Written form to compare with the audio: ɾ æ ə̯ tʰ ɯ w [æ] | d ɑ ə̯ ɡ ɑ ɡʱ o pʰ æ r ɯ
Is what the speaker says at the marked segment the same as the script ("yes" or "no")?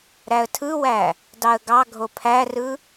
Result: yes